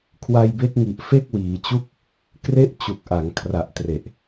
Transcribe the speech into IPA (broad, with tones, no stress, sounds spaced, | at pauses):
kʰ w a˧ j b e˦˥ k̚ ŋ i˨˩ ʔ f e˥˩ k̚ w iː˩˦ t͡ɕ u˥˩ k̚ | k r e˥˩ ʔ t͡ɕ u˨˩ k̚ ʔ a˩˦ ŋ kʰ r a˨˩ ʔ t r e˨˩ ʔ